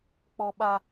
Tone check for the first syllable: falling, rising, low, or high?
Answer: high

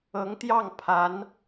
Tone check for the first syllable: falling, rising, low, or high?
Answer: rising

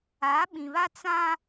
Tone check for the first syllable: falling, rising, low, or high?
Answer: rising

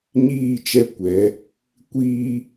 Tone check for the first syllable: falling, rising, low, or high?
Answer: falling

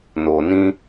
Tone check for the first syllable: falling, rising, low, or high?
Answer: low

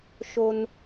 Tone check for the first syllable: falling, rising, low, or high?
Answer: high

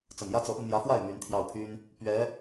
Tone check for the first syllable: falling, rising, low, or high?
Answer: low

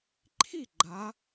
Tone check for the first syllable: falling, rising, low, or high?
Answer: falling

